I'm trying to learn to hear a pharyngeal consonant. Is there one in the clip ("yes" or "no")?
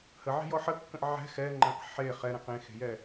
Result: yes